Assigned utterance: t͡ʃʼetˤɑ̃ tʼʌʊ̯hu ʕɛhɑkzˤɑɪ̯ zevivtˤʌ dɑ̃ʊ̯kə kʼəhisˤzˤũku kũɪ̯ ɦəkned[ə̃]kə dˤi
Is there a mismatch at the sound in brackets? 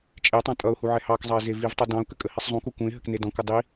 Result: yes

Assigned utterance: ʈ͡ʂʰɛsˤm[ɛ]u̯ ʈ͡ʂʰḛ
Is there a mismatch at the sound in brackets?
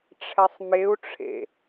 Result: yes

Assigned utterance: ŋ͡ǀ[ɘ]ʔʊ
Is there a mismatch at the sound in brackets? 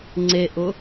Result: yes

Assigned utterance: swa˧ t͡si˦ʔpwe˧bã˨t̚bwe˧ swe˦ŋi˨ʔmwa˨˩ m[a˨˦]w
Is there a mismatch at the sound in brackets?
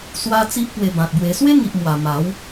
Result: no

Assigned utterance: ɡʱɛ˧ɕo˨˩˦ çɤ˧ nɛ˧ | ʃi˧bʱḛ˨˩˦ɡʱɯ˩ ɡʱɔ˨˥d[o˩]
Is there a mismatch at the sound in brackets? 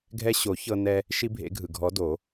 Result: yes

